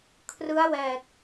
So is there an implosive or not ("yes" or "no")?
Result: no